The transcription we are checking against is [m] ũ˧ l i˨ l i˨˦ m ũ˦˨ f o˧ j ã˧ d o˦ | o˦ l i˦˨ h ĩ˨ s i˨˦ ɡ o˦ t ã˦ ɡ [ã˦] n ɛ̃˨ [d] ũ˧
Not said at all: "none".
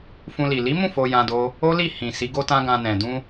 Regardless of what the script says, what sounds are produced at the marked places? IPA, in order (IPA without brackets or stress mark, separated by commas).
f, ã˧, d